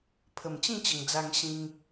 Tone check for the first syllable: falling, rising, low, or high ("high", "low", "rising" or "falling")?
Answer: low